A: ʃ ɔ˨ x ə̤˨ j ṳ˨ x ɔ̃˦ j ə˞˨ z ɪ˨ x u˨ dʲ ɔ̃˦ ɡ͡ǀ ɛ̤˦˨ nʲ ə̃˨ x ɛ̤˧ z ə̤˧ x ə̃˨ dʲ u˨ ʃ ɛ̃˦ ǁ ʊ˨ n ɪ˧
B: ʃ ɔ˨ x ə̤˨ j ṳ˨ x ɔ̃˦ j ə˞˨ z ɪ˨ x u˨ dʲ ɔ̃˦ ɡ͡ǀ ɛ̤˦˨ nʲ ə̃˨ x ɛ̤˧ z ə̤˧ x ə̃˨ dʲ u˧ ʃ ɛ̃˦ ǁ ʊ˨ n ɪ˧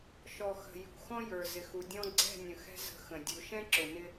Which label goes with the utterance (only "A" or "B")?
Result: A